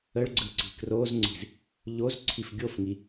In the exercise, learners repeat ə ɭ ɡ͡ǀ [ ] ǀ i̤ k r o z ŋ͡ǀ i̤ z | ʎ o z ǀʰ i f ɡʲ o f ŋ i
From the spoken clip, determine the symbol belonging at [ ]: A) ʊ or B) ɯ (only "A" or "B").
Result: B